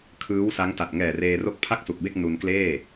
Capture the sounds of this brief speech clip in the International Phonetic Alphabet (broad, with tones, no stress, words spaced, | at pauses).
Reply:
kʰɯː˦˥wsa˦˥ŋ ta˨˩t̚ŋɛː˨˩reː˧ ro˦˥k̚pʰa˥˩k̚su˨˩k̚be˥˩k̚ nu˧nkleː˥˩